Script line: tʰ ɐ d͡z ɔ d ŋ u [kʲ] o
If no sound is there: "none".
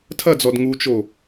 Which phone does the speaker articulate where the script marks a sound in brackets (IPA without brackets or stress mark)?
t͡ʃ